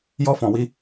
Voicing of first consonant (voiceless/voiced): voiced